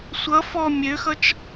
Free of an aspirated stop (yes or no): yes